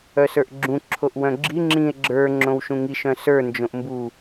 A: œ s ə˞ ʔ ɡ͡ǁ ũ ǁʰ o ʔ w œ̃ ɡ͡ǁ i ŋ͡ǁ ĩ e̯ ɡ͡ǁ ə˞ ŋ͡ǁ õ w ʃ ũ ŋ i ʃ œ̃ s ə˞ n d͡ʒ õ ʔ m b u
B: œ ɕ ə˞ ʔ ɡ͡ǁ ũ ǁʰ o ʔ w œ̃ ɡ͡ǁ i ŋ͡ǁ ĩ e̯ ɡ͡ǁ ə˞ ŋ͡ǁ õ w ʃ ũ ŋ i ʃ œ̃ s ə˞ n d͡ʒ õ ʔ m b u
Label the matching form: A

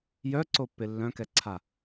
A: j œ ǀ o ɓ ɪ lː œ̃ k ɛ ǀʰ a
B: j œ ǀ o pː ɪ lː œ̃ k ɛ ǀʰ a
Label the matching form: B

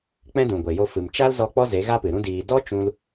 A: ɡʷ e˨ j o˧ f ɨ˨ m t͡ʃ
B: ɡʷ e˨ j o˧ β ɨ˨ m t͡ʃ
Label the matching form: A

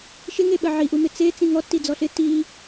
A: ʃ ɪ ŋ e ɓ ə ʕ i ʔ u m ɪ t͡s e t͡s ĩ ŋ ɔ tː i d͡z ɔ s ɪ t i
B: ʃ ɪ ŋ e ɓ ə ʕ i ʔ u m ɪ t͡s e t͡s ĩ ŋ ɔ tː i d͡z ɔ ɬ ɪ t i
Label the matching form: B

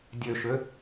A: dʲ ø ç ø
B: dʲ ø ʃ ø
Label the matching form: B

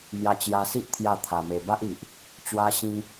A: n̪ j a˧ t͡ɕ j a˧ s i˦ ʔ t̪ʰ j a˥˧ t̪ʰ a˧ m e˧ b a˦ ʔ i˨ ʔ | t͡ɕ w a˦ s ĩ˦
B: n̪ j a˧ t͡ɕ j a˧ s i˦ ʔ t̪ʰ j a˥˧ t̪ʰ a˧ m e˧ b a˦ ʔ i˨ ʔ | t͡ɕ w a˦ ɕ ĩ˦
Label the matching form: B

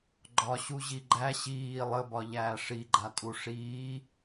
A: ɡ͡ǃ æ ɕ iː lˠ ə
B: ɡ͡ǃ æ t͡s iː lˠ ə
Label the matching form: A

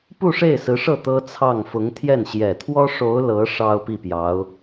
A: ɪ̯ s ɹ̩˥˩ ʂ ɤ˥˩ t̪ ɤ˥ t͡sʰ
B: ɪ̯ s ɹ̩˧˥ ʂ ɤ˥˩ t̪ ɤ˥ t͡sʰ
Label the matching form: B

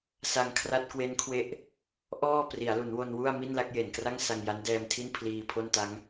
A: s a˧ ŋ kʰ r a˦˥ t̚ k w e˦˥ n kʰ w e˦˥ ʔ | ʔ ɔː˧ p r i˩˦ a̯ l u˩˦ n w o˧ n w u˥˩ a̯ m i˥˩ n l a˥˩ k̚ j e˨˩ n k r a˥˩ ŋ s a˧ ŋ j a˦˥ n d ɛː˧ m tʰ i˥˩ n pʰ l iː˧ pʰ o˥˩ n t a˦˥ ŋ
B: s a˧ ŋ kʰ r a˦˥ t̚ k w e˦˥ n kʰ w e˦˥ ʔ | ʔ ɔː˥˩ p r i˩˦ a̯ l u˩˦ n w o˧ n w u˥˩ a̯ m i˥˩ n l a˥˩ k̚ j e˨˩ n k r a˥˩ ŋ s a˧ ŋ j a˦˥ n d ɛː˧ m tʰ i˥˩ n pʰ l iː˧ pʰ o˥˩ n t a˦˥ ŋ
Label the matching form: B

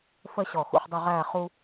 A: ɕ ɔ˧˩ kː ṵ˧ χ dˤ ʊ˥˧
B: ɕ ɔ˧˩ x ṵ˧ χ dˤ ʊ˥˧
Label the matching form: B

